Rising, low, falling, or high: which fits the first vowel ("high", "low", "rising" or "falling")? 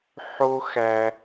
high